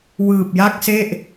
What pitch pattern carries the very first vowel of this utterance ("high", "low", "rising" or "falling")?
low